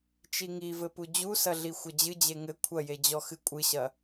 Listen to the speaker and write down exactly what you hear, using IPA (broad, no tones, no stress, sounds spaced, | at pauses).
t͡ʃ i ŋ i v ɘ p u d͡ʑ u s ɐ ɮ i xʷ ɐ d͡ʑ ɨ d͡ʑ e ŋ ɘ kʷʰ ɐ j e d͡ʑ ɔ x ɨ kʷʼ ɨ ɕ ɐ